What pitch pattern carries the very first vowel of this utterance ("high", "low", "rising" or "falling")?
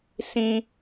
high